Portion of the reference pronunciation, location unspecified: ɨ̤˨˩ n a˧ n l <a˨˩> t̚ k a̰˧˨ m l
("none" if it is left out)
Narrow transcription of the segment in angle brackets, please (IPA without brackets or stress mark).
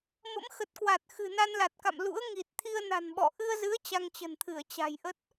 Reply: a˨˩